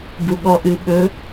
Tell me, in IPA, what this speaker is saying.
b u ɠ ɔ ʔ ɨ ɓ ɵ

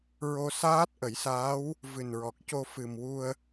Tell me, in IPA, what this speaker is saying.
ɹ o˧ s aː˦˥ t̚ ʔ ə˨˩˦ j s aː˧˥ w | v ɨ˨˩ n ɹ ɔ˨˩ k̚ c o˧ f ɨ˨˩ m w u˧ ə̯

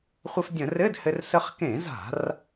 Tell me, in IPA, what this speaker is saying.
χʷ ɘ˧ f dʲ ə̃˧˩˧ r ɘ˧˥˧ d h ɘ˧ r s ə˧ χ k ẽ˧˩˧ z a̤˧˩˧ r

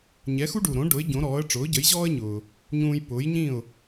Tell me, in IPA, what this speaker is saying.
ɲ ɛ˩˥ x u˥ ɖ u˩ ɾ õ˩˥ ɖ ʊ˩˥ ɪ̯ ɟ õ˩˥ ɾ ɔː˩˥ ə̯ ʈ͡ʂ ʊː˩˥ ɟ ə˩˥ j ʑ ɔː˥ ə̯ ɲ ʊː˩ | ɲ ũː˧ j p ʊː˩˥ j ɲ ĩ˥˩ ʊ̯

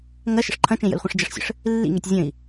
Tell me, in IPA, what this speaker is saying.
ŋ ɐ ʃ ə̰ ʂ ǃʰ ɐ̃ t͡ʃ ẽ j ə̰ l χʷ ẽ ʂ d͡ʒ ɐ ʂ sʲ ə̰ ʂ | lː ḭ ŋ e tʲ zʲ ə̃ i̯

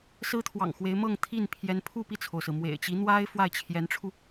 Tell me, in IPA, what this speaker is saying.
s ɹ̩˥ t̪ʰ w ɑ̰˨˩ ŋ x w e˧˥ ɪ̯ m ɤ˥˧ ŋ t̪ʰ i˥˩ n pʰ j ɛ˧˥ n pʰ u˥˧ p i˥˩ t͡sʰ o˩ ʊ̯ s ɹ̩˩ m w ḛ˨˩ ɪ̯ t͡ɕ i˧˥ n̪ w a˥ ɪ̯ f w a˥˩ ɪ̯ t͡ɕʰ j ɛ˧˥ n ʈ͡ʂʰ u˧

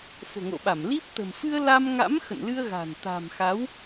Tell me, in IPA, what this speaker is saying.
f o̤˨˩ ŋ o̰˧˨ ɓ a˧˩ m l i˦˥ p̚ t̪ ə̤˨˩ m f ɨ˧ ə̯ l a˧ m ŋ a̰˧˥ m x ə̰˧˨ n l ɨ˧ ə̯ ɣ a̤˨˩ n t̪ a̤˨˩ m x a˨˦ w

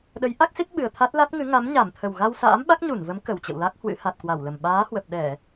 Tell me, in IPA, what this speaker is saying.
ɗ ə˨˦ j ʔ a˦˥ k̚ s i˦˥ t̚ ɓ ɨ˨˩ ə̯ t̪ʰ a˦˥ t̚ l a˦˥ t̚ ŋ ɨ˨˦ ŋ a˨˦ m ɲ a˧˩ m t̪ʰ ə˨˩ w ɣ a˧ w s a̰ː˧˥ m ɓ a˦˥ k̚ ɲ u˧˩ n v ə˨˦ m k ə˨˩ w t͡ɕ ə̰˧˨ w l a˦˥ k̚ h w ɨ̰˧˥ h a˨˩ t̚ k w a˧˩ w l ə˨˩ m ɓ aː˨˦ h w ə˨˩ p̚ ɗ ɛ˧˩˨

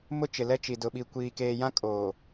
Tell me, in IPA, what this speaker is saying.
m ʊ˦ t͡ʃ ɪ˨ l ɛ˦ t͡ʃ i˨ d ʊ˨ ɓ i˨ kʷ iː˨ k eː˨ j ã˦ kʼ oː˨

